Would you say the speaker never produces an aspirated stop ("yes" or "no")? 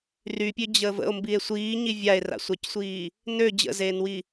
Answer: yes